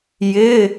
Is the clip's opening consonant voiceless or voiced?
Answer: voiced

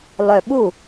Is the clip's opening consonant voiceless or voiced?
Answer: voiced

